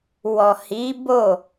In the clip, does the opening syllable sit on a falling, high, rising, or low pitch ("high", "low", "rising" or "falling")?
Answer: low